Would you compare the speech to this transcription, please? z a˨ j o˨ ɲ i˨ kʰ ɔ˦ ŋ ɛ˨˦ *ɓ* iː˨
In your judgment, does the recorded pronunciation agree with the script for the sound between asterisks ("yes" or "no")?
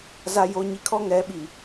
yes